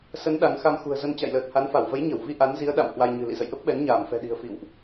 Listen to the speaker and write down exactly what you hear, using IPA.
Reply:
s ə˨˦ n ɗ a˨˦ ŋ x a˧ m x ṳ˨˩ ə̯ z ə˧ n t͡ɕ a̰˧˨ j l əː˨˩ t̚ h a˨˦ n f a˧˩ w v ə˨˦ j ɲ ə˧˩ w v i˧ ʔ a˨˦ n z i˨˦ ə̯ ɗ a̰˧˨ m h w a˧ j ɲ ɨ̤˨˩ l ḭ˧˨ z ə̰˧˨ j ʔ ə˦˥ p̚ ɓ ɛ˨˦ n ɲ aː˧˩ m f ɛ̤˨˩ ɗ i̤˨˩ ə̯ f ḭ˧˨ w ʔ

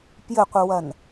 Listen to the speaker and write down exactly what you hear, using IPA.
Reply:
p j ɘ qʷ ɨ w ɐ n

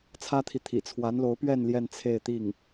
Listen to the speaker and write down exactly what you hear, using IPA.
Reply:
t͡sʰ ä˥ t̪ʰ i˨ t̪ʰ ḭ˨˩ t͡sʰ w a˧˥ n l o˧˥ ʊ̯ p ɥ ɛ˥˧ n l j ɛ˥˧ n t͡sʰ e˥˧ ɪ̯ t̪ i˥˩ ŋ

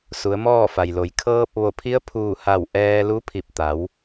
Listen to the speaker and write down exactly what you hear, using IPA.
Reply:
s u˩˧ ə̯ m ɔː˥˨ f a˩ j l o˩ j kʰ ɤː˧ p̚ ʋ o˧˩ pʰ i˧˥ ə̯ pʰ uː˧˩ h a˧˩ w ʔ ɛː˧ l u˧˥ pʰ i˧˩ p̚ t̪ a˩˧ w

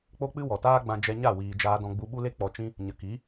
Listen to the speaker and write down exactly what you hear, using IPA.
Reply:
k͡p o˦ k͡p ɨ˦ w ɔ˨ t aː˦ ɡ͡b ã˧ d͡ʒ ɛ˧ ɲ a˦˨ w iː˧ d͡ʒ aː˦ d ɔ̃˦ ɡ͡b u˧ ɓ u˦ l e˦ k͡p ɔ˧ t͡ʃ ĩ˦ | ɲ ə˨ k i˨˦

